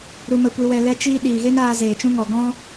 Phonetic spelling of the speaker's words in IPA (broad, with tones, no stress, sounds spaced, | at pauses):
ɾ u˧ m ə˧ kʷ i˧ w ɛ˧ l ɛ˦ t͡ʃ iː˦ ɗ iː˨ ɣ e˦ n aː˧ z eː˨ t͡ʃ ũ˦ ŋ ɔ˨ ɡ ɔ̃˦